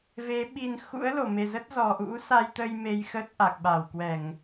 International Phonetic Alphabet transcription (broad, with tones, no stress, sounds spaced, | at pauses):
v e˨˦ ɓ i˧ n x ṵ˧˥ ə̯ l o˧˩ m e˨˩ z ə˦˥ t̚ z ɔ˨˩ ʔ ṵ˧˥ s a˧ j t̪ ə˧ j m e˧ j x ə˦˥ t̚ ʔ a˨˩ k̚ ɓ a˧˩ w k w ɛ˧˩˨ ŋ